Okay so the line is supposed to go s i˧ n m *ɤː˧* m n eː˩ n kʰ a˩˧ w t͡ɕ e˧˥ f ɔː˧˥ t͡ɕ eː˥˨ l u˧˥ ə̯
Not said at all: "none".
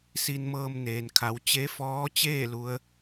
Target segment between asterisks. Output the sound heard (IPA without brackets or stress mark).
ɤː˧